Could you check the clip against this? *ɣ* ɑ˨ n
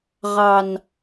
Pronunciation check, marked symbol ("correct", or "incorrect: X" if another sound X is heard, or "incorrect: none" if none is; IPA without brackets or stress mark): incorrect: ʁ